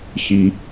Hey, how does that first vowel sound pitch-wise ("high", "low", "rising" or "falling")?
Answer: low